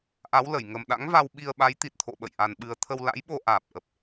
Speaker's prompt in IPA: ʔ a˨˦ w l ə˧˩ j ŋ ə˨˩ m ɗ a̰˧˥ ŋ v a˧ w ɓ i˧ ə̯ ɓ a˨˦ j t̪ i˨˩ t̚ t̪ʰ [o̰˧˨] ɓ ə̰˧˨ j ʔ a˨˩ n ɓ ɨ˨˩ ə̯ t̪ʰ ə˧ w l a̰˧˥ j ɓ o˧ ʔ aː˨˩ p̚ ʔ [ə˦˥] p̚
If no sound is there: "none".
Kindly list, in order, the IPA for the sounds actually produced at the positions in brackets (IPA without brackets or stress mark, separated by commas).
o̰˧˨, ə˨˩